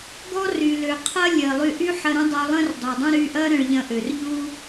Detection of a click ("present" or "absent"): absent